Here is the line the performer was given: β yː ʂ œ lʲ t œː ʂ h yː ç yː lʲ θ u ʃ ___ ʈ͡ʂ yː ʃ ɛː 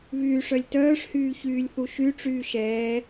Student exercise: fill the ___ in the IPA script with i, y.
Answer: y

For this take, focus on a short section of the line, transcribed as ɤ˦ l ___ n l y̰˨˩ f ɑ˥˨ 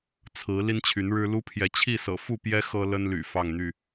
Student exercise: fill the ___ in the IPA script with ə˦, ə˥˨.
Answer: ə˦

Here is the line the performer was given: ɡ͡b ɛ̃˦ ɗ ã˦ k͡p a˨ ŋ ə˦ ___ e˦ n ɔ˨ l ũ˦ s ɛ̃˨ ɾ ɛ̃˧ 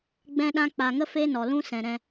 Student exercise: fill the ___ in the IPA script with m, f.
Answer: f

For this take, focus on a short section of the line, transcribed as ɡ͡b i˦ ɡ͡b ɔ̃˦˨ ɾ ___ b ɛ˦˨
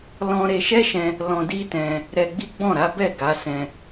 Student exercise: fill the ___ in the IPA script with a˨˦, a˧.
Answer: a˨˦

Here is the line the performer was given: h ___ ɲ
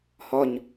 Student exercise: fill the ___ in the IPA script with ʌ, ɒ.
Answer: ɒ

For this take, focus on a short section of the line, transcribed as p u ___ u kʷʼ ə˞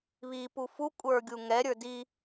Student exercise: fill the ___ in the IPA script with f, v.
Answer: f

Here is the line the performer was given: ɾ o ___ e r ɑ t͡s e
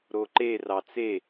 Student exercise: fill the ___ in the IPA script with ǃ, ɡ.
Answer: ǃ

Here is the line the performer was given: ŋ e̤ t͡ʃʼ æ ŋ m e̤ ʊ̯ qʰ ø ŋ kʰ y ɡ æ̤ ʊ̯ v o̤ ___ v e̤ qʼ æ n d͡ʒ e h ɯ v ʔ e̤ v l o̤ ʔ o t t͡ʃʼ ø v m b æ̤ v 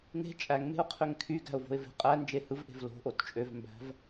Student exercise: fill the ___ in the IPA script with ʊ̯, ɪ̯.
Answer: ɪ̯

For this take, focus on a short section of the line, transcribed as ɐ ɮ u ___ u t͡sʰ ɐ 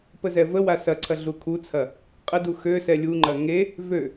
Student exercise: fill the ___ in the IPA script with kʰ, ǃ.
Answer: kʰ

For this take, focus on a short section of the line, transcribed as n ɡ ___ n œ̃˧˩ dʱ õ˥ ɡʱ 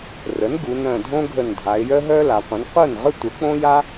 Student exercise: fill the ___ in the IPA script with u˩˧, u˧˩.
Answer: u˩˧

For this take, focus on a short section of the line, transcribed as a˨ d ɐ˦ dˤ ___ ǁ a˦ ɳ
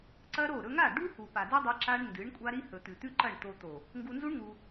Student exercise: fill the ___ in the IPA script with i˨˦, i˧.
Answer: i˧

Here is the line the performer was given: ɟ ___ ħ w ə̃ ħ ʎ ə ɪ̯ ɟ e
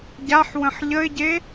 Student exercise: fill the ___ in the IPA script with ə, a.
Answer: a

